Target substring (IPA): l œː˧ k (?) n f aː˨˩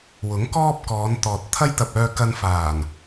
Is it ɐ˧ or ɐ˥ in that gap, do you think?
ɐ˧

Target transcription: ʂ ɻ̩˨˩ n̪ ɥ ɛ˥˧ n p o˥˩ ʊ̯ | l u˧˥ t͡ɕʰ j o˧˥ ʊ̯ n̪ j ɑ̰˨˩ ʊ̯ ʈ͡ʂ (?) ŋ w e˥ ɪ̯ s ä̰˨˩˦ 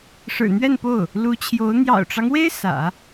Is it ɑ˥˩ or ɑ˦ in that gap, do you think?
ɑ˦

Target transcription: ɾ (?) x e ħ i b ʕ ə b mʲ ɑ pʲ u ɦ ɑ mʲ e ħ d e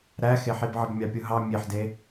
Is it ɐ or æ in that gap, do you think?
æ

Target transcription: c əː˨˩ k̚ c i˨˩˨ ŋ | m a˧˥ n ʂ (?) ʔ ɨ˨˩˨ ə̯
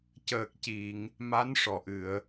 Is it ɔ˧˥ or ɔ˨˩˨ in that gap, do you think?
ɔ˨˩˨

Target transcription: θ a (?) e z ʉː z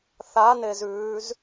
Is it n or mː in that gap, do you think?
n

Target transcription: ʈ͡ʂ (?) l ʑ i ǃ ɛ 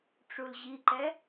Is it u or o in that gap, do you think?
u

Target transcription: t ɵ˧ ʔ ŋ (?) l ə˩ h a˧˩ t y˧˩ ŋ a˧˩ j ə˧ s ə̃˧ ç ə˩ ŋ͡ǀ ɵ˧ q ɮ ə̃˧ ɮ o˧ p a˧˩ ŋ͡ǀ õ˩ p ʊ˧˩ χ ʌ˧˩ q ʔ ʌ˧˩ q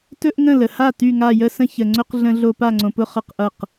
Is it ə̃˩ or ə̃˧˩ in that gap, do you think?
ə̃˧˩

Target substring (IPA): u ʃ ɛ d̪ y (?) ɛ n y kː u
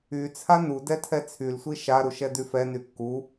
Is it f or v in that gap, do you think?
f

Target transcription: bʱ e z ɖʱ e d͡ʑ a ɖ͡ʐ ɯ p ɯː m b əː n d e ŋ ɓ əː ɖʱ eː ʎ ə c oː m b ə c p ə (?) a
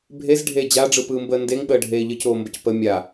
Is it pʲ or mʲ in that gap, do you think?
mʲ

